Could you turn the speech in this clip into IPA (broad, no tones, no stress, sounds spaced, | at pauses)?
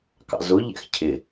k ɑ̰ z ʊ ʎ ɛ̰ x cʰ ɪ